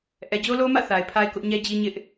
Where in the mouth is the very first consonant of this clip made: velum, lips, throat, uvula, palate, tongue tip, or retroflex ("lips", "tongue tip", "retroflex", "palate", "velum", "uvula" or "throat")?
throat